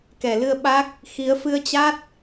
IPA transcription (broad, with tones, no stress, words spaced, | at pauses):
kɛ˧˩lɨ˧ə̯ɓa˦˥k̚ | xi˨˦ə̯ fɨ˧ə̯t͡ɕa˦˥t̚